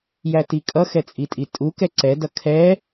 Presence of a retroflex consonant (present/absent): absent